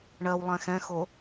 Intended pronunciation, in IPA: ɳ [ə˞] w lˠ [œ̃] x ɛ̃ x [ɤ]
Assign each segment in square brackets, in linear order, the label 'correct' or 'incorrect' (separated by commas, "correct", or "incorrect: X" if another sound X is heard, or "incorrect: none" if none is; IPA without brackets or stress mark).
incorrect: ɜ, incorrect: ɛ̃, incorrect: o